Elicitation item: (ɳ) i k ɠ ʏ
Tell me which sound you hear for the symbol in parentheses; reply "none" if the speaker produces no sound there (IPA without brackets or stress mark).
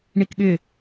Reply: ɳ